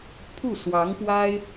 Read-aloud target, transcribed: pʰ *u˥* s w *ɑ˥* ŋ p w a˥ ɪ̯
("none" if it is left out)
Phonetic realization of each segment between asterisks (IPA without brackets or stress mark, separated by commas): u˥˩, ɑ˧˥